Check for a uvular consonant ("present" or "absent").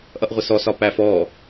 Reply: present